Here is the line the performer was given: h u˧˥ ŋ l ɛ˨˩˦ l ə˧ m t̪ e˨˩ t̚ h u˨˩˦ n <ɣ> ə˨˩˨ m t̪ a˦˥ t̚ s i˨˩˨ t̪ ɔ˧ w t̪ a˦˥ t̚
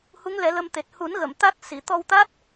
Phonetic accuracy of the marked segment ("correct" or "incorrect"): correct